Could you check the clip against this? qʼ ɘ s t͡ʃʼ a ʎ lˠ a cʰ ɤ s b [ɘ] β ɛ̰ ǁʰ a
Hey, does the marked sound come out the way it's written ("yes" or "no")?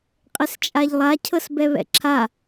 no